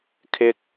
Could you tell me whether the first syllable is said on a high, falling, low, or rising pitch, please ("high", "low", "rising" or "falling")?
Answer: high